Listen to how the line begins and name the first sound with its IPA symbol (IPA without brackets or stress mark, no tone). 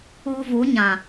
u